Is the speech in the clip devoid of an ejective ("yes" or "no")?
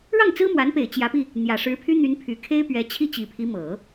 yes